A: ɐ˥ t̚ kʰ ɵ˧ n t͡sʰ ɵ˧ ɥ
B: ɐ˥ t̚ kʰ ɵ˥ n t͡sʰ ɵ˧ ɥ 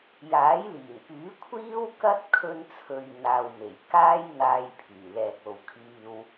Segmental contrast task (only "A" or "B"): B